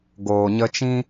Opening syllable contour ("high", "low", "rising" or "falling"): low